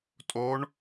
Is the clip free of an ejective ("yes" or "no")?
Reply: no